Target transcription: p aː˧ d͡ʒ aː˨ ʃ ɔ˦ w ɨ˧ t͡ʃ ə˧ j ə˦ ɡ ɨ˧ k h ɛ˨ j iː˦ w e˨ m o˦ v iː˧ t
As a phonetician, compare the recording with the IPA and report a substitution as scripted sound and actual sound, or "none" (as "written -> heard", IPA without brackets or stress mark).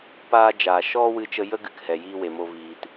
none